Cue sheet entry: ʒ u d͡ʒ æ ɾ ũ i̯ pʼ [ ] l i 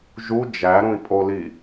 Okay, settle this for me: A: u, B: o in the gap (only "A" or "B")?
B